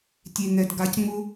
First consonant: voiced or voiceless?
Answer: voiceless